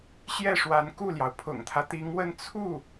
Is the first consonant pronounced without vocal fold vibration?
yes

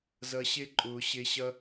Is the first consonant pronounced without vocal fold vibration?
no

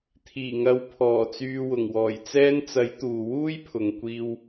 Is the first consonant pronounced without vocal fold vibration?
yes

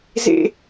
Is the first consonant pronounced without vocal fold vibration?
no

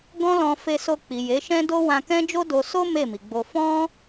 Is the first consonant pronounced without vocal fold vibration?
no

